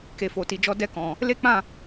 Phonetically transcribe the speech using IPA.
k e˨ f o˨ t i˨ d͡ʒ ɔ˧ d ɛ˧ k ɔ̃˨ | l e˦ k͡p ã˦˨

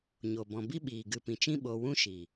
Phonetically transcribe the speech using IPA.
ɲ o˨ b ɔ̃˨ b i˦ ɓ iː˨ ɡ ɨ˨ p ĩ˨ t͡ʃ ĩ˦ ɓ o˧ w ũ˦ ʃ i˨

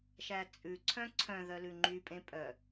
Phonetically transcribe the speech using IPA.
ʃ æ t͡sʼ ʉ ǀʰ œ̃ ǀʰ œ̃ ð œ l ʉ ŋ͡ǃ y pʼ ẽ pʼ œ

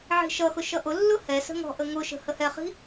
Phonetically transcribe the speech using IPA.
ʕ i̤ ʃ ʌ x ʊ ʃ ʌ ʔ ʊ lː ʊ h ɛ s ə̤ ŋ ɔ̤ ʔ ə ŋ ʊ ʃ ə̤ h ə h ɛ χ i̤

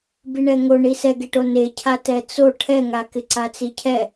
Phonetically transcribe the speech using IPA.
b i ɳ ɛ ŋ o ɳ i s ɛ ɡ e ʈ o n e cʰ a t ɛ t͡s o ʈʰ ɛ ŋ a k ɪ ǀ a t͡s i cʰ ɛ

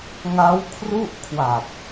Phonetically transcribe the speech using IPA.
ŋ a˦˥ w kʰ r u˥˩ ʔ kʰ w a˨˩ p̚

